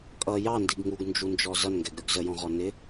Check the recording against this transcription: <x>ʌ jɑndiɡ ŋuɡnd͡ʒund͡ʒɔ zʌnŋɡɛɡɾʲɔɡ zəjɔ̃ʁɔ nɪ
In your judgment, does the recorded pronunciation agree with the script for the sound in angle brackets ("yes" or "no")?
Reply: no